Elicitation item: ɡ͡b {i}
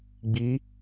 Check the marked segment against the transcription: correct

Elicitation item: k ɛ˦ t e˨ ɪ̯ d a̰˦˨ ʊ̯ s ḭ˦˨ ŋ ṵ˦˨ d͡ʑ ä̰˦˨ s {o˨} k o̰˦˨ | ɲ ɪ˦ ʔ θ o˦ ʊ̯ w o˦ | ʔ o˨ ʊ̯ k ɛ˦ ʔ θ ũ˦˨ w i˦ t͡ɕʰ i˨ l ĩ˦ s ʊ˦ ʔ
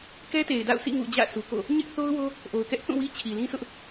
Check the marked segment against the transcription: incorrect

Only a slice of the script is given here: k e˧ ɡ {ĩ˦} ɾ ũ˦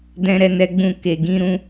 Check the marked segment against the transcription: correct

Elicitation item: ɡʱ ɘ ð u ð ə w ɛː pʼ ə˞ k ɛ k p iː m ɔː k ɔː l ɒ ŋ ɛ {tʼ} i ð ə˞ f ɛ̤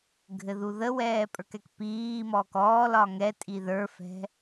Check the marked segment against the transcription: correct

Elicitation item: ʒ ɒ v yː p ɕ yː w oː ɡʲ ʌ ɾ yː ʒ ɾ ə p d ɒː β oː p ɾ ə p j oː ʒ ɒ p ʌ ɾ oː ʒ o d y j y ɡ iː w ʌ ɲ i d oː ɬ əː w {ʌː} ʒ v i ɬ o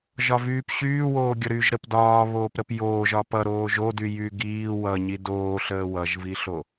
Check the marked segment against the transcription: incorrect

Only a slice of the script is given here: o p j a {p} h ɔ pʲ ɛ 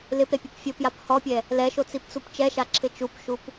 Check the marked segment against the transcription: correct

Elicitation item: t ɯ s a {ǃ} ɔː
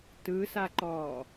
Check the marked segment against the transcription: correct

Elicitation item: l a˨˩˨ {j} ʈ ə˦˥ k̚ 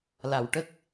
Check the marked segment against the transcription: incorrect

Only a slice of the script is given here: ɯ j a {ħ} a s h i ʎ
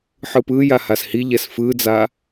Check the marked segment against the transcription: incorrect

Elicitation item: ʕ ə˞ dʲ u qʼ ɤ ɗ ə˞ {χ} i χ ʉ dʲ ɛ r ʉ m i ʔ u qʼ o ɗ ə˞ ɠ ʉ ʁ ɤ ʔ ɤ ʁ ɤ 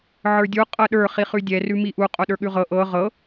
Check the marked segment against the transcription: correct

